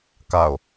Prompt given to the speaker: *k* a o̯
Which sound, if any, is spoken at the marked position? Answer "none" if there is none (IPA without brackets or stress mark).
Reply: k